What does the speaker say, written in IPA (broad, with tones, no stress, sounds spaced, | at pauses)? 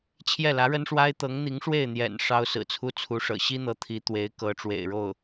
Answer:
t͡ɕʰ j ɛ˥˩ l ä˧˥ ɻ ə˥ n ʂ w a˥ ɪ̯ t̪ ɤ˧˥ ŋ n̪ i˧˥ ŋ ʂ w e˥˩ ɪ̯ n̪ j ɛ̰˨˩ n ʂ ɑ˥ ʊ̯ s ɹ̩˨˩ t͡sʰ u˥ t͡sʰ u˧˥ ʂ ɤ̰˨˩ ɕ i˥ n̪ ɤ˧˥ t̪ʰ i˧˥ t̪ w e˧˥ ɪ̯ k ɤ˧˥ ʈ͡ʂ w ḛ˨˩ ɪ̯ ɻ o˥˩ ʊ̯